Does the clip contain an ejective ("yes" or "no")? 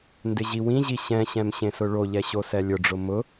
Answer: no